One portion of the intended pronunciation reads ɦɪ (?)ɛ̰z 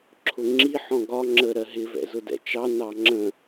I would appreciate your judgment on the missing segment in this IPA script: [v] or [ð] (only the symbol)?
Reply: v